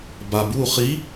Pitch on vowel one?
low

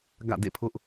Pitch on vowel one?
falling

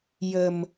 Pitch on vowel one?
low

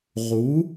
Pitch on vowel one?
rising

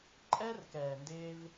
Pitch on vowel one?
high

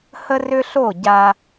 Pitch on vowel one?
high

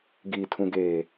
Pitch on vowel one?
low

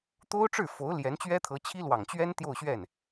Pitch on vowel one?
high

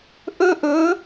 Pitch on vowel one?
high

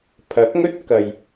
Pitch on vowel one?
rising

